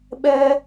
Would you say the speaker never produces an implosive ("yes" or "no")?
no